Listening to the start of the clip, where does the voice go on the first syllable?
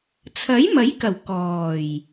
rising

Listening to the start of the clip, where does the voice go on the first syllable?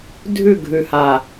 falling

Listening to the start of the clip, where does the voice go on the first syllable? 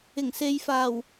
low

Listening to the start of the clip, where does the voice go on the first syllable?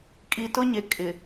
low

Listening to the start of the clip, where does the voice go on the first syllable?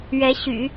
rising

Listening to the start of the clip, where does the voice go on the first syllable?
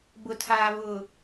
low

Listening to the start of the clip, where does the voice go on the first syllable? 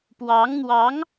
rising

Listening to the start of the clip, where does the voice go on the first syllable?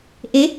rising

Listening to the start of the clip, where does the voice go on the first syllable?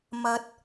rising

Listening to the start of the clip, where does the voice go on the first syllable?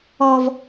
low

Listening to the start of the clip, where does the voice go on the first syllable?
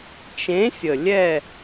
rising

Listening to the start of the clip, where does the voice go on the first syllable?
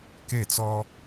falling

